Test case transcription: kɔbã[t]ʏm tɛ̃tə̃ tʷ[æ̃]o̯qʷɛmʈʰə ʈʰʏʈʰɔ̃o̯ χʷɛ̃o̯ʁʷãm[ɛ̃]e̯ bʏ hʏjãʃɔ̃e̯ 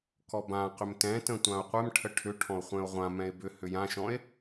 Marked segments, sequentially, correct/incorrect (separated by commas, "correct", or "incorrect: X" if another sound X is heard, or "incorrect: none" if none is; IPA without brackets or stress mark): incorrect: q, incorrect: ã, correct